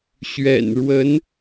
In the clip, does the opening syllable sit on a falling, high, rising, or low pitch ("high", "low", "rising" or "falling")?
low